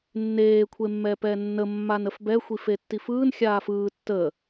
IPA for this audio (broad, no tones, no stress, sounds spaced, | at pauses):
nː eː kʷʰ e mː ɛː p ɛː nː ə mː a n ə f b ɛ xʷ i f e tː i f ɯː n xʲ aː f ɯː tː ə